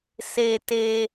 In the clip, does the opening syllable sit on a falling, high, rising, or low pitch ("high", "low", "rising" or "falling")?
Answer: low